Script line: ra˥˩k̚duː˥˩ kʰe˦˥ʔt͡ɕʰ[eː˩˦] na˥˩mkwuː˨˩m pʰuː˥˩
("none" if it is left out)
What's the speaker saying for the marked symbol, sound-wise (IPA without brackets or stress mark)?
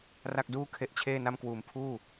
eː˥˩